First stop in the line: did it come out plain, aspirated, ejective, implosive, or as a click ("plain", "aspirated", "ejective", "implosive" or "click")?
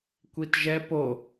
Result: plain